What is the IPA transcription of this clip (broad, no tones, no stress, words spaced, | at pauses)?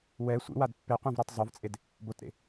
wɛ sʷḭwad pːeqʷɛ̃vɾə˞tˤ zˤovt͡sʼed | botɾḛ